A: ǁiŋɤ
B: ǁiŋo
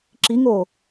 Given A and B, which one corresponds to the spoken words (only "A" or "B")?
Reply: B